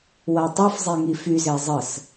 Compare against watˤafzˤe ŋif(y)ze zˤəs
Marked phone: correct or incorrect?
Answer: correct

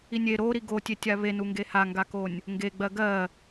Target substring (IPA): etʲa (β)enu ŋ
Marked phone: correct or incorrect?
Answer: correct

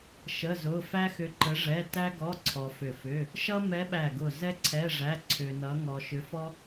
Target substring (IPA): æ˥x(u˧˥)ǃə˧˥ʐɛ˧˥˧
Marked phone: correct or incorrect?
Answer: incorrect: ʏ˧˥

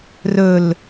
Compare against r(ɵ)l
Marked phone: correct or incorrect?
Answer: correct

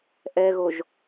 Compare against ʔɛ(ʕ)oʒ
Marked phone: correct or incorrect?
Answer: incorrect: ɣ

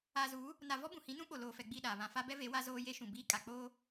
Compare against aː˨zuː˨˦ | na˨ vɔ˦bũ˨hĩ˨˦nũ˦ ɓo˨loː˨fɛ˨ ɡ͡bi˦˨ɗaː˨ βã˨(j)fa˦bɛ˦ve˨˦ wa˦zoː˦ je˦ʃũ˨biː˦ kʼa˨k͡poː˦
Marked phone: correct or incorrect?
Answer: incorrect: none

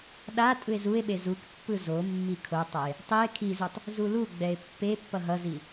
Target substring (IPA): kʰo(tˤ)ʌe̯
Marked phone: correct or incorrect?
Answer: correct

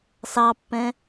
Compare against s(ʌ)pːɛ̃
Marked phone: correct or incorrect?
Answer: incorrect: ɑ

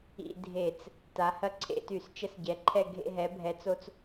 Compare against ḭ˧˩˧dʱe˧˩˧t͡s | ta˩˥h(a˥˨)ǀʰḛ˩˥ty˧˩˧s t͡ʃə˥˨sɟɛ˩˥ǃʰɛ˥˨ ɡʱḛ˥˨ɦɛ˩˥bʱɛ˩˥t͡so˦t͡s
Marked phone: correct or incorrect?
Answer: incorrect: ɐ˥˨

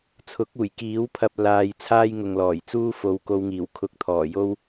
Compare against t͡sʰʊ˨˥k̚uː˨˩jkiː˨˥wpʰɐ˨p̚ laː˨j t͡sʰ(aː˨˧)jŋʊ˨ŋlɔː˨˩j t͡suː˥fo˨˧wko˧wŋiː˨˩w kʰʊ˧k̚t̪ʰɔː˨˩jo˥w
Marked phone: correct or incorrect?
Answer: incorrect: aː˥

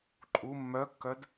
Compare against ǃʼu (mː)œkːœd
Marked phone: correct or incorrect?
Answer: correct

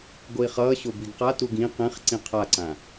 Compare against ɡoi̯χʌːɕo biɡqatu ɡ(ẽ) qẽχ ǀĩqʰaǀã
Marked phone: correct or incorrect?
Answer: incorrect: ĩ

